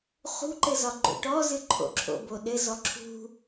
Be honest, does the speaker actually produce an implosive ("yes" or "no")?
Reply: yes